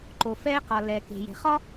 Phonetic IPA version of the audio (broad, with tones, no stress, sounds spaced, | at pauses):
ǃ o˩ f ɛː˧ q ɒ˩ l ɛ˩ k e̤˩ j e̤˩ χ ɒ˥